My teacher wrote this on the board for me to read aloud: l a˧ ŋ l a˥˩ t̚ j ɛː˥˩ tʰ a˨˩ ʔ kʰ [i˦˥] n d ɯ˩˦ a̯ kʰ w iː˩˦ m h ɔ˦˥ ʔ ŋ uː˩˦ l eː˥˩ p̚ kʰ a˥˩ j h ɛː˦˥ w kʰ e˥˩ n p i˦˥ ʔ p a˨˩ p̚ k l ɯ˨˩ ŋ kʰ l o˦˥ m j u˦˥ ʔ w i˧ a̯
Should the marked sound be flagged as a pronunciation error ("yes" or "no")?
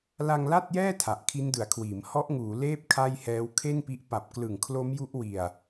no